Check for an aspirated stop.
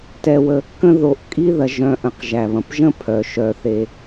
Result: present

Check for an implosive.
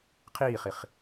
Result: absent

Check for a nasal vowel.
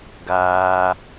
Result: absent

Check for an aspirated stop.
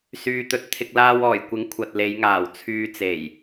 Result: present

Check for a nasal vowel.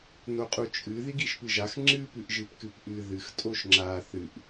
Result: absent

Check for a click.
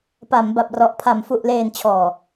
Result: absent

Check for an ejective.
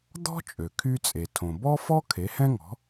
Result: present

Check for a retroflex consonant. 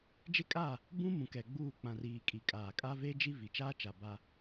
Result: absent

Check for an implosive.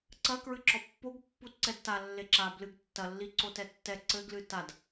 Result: absent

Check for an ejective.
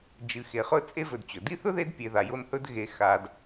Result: present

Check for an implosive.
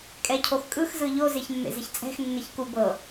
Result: absent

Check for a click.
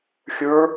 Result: absent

